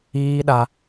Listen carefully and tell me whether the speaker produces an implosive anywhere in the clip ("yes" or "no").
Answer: yes